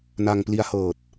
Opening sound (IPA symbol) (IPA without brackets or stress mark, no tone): n